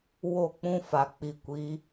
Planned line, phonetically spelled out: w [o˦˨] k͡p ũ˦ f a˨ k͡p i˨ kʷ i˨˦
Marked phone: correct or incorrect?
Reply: correct